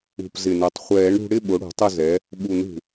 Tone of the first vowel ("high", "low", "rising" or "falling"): low